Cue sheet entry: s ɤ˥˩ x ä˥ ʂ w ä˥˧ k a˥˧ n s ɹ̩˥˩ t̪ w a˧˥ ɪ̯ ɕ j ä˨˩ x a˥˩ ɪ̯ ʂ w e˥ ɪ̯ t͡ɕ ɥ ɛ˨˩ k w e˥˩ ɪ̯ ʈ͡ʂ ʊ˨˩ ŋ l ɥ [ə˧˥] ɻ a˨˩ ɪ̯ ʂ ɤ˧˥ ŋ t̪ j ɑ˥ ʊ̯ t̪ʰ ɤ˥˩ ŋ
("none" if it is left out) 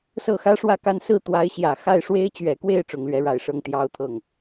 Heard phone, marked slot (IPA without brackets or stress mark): ɛ˧˥